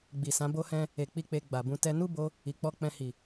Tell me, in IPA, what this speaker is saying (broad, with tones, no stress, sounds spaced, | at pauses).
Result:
ɡ͡b i˨ s ã˨˦ b o˦ h ɛ̃˦ | e˨ k͡p i˧ k͡p e˧ ɡ͡b a˨ b ũ˧ t ɛ˦ n u˦ b o˧ | i˨ k͡p ɔ˧ k͡p ɛ̃˧ h i˨